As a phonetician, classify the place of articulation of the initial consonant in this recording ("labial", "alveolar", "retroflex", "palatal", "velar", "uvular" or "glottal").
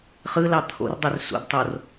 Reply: uvular